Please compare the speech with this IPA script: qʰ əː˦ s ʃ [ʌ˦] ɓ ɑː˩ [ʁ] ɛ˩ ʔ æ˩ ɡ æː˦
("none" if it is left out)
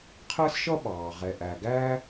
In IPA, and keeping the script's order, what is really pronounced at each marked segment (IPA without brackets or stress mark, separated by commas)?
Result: ʌ˦, ʁ